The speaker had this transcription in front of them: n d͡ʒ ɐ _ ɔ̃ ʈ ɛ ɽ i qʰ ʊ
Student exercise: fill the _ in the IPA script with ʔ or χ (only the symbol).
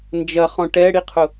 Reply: χ